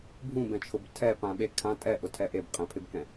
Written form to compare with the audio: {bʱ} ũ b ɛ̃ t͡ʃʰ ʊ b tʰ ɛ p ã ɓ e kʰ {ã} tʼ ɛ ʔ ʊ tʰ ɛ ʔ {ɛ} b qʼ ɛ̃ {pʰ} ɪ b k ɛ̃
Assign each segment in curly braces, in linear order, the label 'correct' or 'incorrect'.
correct, correct, incorrect, correct

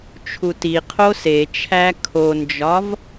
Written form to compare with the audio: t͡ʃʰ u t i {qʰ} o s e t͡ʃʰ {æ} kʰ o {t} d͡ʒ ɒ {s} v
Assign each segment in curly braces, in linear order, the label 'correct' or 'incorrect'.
correct, correct, incorrect, incorrect

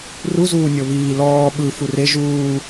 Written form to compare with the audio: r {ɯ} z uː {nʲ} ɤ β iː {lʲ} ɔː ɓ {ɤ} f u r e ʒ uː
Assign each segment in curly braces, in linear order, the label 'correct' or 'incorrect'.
incorrect, correct, incorrect, incorrect

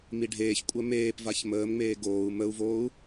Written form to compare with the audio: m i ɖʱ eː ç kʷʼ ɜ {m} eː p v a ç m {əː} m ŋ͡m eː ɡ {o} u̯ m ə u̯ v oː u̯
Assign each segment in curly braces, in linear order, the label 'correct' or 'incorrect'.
correct, correct, incorrect

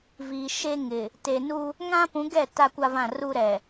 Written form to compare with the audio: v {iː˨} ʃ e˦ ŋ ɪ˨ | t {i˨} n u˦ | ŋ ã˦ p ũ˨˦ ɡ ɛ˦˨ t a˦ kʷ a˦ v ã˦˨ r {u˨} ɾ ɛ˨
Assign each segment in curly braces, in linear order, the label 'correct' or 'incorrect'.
correct, incorrect, incorrect

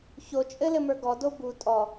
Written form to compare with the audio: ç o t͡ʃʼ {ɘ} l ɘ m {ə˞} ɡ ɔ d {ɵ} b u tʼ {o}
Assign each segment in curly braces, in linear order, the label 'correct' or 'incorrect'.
correct, correct, incorrect, incorrect

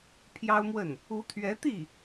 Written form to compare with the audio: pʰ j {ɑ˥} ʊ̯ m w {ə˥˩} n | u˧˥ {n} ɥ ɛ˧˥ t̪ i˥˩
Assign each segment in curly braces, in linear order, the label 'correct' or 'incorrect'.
correct, correct, incorrect

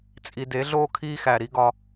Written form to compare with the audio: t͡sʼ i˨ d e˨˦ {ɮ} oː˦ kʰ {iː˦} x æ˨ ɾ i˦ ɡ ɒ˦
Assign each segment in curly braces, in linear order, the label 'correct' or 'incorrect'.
correct, correct

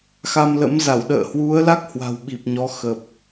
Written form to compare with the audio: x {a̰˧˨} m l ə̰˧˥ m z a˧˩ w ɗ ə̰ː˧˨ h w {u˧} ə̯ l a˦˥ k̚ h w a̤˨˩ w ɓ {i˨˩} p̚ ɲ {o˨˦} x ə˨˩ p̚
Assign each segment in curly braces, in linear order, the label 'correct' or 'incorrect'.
incorrect, incorrect, correct, incorrect

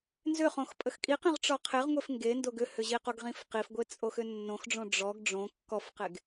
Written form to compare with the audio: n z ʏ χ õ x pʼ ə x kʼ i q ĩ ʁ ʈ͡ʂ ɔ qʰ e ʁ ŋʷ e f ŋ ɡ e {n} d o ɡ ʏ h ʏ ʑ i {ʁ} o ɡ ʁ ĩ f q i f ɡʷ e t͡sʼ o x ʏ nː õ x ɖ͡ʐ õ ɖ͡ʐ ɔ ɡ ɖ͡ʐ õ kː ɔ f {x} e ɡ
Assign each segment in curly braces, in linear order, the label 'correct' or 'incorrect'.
correct, incorrect, incorrect

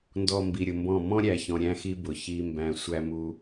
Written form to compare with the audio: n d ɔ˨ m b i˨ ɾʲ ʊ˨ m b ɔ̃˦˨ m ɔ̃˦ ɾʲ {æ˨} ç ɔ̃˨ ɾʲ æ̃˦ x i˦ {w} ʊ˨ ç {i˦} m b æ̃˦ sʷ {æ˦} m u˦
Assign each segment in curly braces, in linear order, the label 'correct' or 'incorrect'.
correct, incorrect, correct, correct

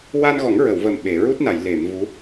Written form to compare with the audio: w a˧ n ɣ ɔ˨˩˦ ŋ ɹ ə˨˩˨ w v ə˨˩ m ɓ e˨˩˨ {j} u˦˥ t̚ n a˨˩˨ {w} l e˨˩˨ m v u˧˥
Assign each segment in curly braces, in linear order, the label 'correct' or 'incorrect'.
incorrect, incorrect

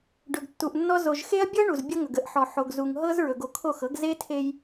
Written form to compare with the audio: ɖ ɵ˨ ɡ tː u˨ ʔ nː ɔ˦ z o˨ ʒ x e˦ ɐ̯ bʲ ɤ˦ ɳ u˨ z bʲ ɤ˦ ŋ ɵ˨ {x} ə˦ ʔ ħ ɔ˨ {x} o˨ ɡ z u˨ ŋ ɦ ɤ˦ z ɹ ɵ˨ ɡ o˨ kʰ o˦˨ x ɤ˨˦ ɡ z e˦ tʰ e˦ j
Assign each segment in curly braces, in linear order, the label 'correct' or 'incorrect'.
incorrect, incorrect

